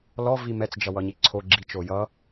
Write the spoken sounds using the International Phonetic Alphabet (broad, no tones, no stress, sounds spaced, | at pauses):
l ɔ v i m ɛ t͡s d͡ʒ ʌ w ʌ ɲ i ǀʰ o ɡ͡ǁ i t͡ʃ o j ʌ